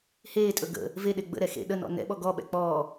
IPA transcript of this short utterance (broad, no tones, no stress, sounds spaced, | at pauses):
h eː tʼ ɵ ɡ ə̰ | v e ɗ e ɡ͡b ə̰ ɾ ɛ x ḛ ɗ ə n ɔ̰ n ɛ̰ ɓ ɔ ɡ ɔ ɓ ɛ̰ k͡p ɔː